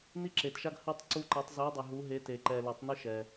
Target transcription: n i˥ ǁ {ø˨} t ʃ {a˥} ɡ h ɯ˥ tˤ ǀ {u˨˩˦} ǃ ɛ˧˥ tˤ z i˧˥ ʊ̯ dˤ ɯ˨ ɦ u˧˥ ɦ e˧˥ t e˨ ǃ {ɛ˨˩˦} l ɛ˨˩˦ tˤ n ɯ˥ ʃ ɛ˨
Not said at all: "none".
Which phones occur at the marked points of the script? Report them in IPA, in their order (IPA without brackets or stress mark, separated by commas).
e˨, a˥, u˥, ɛ˨